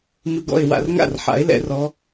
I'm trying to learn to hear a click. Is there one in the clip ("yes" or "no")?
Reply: no